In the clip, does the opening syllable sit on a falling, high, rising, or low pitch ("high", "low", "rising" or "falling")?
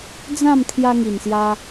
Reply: falling